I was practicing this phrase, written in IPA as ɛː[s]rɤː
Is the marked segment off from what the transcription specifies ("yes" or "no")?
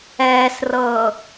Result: no